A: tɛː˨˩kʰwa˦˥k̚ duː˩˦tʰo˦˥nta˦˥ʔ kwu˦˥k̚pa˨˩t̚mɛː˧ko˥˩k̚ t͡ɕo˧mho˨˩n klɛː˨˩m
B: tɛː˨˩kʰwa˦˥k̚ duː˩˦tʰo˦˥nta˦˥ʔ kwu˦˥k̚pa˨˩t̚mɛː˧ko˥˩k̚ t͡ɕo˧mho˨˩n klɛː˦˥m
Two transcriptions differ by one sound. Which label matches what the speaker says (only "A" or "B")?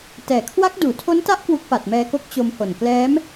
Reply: B